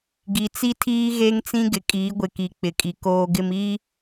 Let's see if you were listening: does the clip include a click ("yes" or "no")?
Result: no